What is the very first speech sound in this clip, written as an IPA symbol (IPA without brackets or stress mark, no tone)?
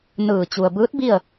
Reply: n